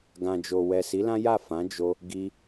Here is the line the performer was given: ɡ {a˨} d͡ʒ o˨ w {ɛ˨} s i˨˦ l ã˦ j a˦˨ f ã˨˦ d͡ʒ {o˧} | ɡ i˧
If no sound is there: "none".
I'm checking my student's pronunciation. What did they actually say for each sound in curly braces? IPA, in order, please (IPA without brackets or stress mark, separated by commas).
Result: ã˨, ɛ˨, o˧